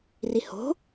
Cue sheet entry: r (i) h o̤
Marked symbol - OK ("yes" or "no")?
yes